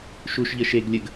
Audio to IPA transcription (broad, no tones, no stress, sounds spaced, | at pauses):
ʃ u ʃ ʎ ə ʃ e ɡ lʲ ə ɡ